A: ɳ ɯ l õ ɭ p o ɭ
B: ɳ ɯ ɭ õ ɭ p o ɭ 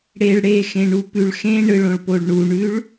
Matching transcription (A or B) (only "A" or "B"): B